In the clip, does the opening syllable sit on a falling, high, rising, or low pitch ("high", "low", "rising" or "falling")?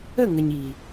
falling